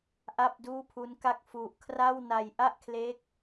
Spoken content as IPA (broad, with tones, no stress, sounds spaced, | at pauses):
ʔ a˥˩ p̚ d uː˥˩ pʰ u˦˥ n k a˥˩ k̚ f u˨˩ ʔ kʰ r a˥˩ w n a˧ j ʔ a˥˩ ʔ kʰ l e˦˥ k̚